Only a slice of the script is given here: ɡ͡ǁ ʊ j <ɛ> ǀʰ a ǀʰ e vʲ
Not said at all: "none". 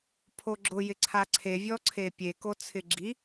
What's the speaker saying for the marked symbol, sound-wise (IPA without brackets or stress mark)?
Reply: ɪ